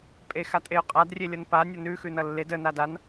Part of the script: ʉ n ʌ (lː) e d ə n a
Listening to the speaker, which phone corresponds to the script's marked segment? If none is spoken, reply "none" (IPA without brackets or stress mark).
lː